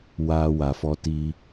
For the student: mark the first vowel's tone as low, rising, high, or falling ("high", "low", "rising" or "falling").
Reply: high